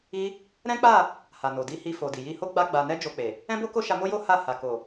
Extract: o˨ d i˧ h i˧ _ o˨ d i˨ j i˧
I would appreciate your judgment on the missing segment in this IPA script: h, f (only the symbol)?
f